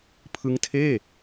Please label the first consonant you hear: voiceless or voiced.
voiceless